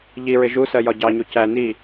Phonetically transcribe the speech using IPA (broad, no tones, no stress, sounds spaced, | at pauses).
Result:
ʎ i ɹ ɪ ʒ u s ɜ j ɒ ɟ ɑ ɲ u c æ n i